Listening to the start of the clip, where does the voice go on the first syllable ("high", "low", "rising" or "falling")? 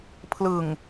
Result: low